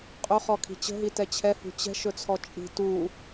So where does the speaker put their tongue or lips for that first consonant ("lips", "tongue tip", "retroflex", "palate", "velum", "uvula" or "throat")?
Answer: uvula